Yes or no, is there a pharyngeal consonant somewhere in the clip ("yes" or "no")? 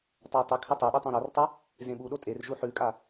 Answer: yes